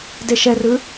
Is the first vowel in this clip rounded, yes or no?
no